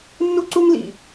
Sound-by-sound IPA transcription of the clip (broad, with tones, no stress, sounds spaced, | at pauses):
nː u˦ ǀ u˦ ŋ l ḭ˨